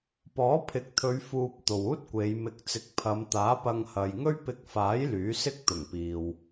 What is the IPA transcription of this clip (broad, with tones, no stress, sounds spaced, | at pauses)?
p ɔː˨˥ pʰ ɪ˨˥ k̚ t̪ʰ ɵ˨˧ ɥ f uː˨ p̚ t̪ o˨ w uː˥ t̚ kʷ e˨˧ j m ɪ˨˥ k̚ t͡s ɪ˨˥ k̚ pʰ ɐ˨˧ m t̪ aː˨˥ p ɐ˧ ŋ h ɐ˨ j ŋ ɵ˥ ɥ p ɪ˧ k̚ f aː˨˥ j l yː˨˥ s ɪ˥ k̚ t̪ ʊ˨˩ ŋ p iː˨ w